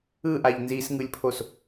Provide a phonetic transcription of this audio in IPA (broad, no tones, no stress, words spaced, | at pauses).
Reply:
ɯʔaʎ nzisŋɯlʲpʰos